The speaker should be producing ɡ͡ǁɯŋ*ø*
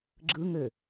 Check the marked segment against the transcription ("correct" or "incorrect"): correct